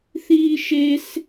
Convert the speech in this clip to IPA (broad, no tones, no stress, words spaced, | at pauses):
θiːʃes